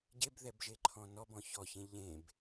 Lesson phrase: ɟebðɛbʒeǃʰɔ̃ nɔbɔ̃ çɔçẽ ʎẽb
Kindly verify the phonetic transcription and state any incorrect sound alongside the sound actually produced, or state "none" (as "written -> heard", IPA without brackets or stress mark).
none